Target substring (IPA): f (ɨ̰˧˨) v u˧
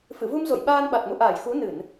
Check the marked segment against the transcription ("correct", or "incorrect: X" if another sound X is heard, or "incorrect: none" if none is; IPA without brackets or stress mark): correct